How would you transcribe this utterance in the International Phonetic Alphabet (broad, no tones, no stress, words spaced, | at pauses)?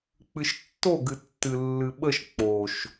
k͡pɨʃtːo ɡɨtːɨlːɨɓəʃ k͡poʃ